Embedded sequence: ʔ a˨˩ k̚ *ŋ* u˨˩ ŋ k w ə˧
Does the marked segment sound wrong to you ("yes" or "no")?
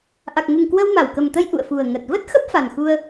no